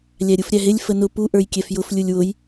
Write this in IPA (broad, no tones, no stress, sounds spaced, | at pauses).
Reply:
lʲ æ ɾʲ u f ɾʲ æ ɦ ɪ lʲ f ə n ʊ p u ʔ ə˞ j kʲ ɛ f j ʊ f lʲ u lʲ w ʊ j